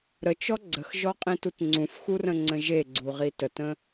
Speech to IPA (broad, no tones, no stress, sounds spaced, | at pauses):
ɾ ə t͡ʃ ɔ ɡ͡ǀ ə x ʒ ɔ qʼ ĩ t u t ŋ͡ǀ ũ f x u r ə̃ ŋ͡ǀ ə̃ ʒ e ɡ͡ǀ u ʁ i t ə t ə̃